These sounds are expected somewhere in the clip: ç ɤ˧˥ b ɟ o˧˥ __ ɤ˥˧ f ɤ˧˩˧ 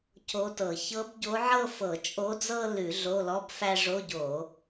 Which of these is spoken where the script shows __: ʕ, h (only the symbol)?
ʕ